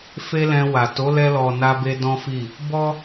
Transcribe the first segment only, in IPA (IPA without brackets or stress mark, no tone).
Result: f